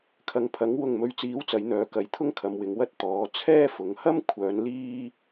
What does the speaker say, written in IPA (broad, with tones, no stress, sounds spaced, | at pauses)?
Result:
kʰ ɐ˨ ŋ pʰ ɐ˨˥ ŋ w ʊ˨ ŋ m ɵ˨˧ ɥ t͡s iː˨˥ w t͡s ɐ˨˧ j n̪ œː˨˧ k ɐ˨˥ j t̪ʰ ʊ˥ ŋ kʰ ɐ˨˧ m w ɪ˨˧ ŋ w ɐ˥ t̚ t̪ ɔː˨˥ t͡sʰ ɛː˥ f ʊ˨˧ ŋ h ɐ˥ m kʷʰ œː˨˧ n l iː˥